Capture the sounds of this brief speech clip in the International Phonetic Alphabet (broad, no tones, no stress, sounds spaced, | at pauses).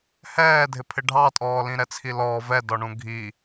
h ɛː dʱ ɪ pʰ ɪ ɖʱ ɑ tʼ ɔː l ĩ ɾ ɛ t͡sʰ i l ɔː v ɛ d ɔ ɳ ũ ɡʱ i